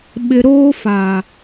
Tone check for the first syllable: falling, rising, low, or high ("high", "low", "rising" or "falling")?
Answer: low